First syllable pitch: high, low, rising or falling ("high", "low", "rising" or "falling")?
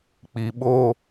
low